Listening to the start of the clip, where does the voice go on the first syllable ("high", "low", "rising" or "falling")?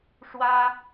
high